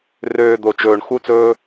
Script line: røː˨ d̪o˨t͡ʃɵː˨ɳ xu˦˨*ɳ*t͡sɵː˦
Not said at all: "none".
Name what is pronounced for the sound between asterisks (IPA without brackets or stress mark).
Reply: none